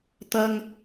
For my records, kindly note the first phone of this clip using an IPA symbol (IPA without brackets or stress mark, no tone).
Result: t̪